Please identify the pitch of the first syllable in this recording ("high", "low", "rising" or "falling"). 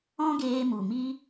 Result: high